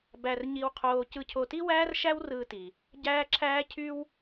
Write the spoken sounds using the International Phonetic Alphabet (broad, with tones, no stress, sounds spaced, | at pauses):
b æ˧ r ɲ i˧ w qʰ oː˧ c ɯ˧ cʰ o˧ t i˥ w æː˥ r ʃ æ˥ w r ɯː˧ t i˩ | ɟ æː˥ ǁʰ æː˥ cʰ y˥ w